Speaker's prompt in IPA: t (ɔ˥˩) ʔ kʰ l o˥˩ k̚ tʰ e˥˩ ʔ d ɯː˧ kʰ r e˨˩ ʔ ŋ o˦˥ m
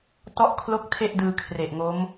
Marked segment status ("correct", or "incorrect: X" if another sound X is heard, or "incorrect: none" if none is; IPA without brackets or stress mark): correct